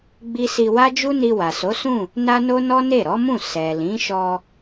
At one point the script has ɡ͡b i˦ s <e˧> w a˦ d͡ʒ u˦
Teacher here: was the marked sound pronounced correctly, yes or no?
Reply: no